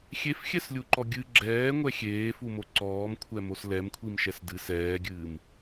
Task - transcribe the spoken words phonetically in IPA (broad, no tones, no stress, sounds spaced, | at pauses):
xʲ e f xʲ ɛ s lʲ u ǃ ɔ ɡʲ ɨ ɡ͡ǁ ɛː ŋʷ ɛ xʲ eː f u m o ǀ ɔː m kʷʰ ɛ m o s l ɛ m kʷʰ i m ʃ ɛ s d ɨ s ɛː ɡʲ ɨː m